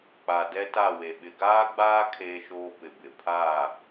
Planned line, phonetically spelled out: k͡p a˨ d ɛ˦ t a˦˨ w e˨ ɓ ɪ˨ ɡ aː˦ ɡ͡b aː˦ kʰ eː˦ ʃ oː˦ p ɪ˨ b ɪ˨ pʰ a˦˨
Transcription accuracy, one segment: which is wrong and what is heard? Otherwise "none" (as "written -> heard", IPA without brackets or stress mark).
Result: none